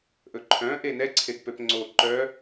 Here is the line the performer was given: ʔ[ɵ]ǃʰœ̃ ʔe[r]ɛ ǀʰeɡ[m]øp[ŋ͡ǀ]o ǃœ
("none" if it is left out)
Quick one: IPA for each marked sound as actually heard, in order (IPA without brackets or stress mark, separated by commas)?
ɵ, n, p, ŋ͡ǀ